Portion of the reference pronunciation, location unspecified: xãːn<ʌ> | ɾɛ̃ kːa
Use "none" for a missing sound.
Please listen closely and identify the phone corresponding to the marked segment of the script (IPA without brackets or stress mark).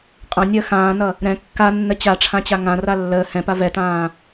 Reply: ʌ